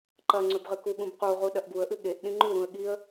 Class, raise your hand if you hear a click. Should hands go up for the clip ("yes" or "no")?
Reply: yes